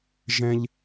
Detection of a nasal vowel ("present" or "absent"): present